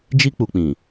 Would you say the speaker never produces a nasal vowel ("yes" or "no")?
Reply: no